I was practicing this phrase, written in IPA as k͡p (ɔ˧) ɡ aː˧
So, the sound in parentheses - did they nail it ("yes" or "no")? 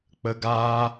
no